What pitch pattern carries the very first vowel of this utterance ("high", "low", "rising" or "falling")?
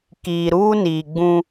low